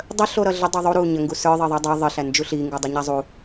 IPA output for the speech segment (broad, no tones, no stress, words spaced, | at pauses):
dˤə ɬoɾʌɮə dˤuðˤu ɾu ɲəŋɡusə˞ ðˤɜðˤɜdˤə˞ ðˤə ɬænd͡ʒuɬi ŋɡudˤeɲazˤu